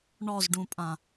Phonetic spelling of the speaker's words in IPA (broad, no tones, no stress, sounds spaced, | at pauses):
ɳ ɔ z ɖ ũ pʼ ã